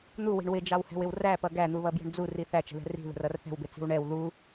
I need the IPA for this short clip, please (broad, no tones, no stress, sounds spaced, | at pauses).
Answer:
n̪ u w i̤ ɳ w ɪ d͡ʒ ɑ w h ɛ̤ w ɪ w r æ p ʌ ɡ æ n̪ u β ʌ b j ə̤ ɳ d͡z u r i θ æ t͡ʃ ə̤ ð ɛ̤ r i̤ ð ə̤ r ʌ r θ ɛ̤ w b ɪ t͡s i̤ w ɳ ɛ w ð u